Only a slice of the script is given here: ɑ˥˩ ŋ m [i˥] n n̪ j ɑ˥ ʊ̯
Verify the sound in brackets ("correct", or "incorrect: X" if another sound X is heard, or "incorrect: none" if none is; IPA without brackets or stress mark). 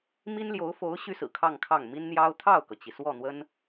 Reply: correct